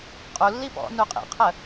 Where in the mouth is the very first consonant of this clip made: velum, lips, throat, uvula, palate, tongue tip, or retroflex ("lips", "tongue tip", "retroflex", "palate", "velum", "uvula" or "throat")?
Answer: uvula